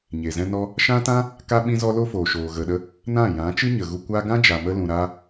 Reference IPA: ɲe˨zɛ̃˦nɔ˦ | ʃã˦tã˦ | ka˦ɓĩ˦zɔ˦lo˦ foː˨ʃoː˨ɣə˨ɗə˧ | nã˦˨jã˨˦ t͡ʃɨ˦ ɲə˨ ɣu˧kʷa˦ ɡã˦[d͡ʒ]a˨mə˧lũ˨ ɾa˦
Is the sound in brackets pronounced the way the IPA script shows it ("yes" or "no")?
yes